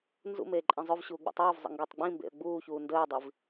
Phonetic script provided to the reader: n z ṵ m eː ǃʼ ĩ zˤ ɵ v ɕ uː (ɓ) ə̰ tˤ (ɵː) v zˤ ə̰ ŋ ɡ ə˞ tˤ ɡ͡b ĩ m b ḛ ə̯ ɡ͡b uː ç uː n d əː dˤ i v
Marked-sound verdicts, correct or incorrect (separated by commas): incorrect, correct